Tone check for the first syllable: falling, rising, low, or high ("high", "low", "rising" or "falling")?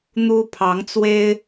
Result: high